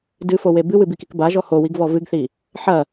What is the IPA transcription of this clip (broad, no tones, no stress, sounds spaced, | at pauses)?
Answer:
d ɨ f o w e b ɨ w ɨ b i k i k b a ʒ ɔ h o w i ɡ v ɔ v ɨ ɡ θ i | ħ ɐ